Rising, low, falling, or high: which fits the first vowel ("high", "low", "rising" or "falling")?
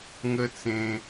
high